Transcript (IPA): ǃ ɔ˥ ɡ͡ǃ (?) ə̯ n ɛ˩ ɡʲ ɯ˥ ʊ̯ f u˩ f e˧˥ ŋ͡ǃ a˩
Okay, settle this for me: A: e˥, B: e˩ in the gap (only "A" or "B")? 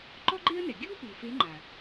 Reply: A